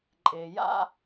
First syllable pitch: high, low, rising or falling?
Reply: low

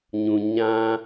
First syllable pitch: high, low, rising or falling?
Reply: low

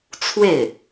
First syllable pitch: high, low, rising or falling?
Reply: falling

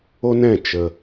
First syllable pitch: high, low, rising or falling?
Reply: high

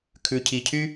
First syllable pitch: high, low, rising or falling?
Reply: low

